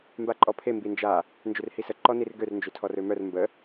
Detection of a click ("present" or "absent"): present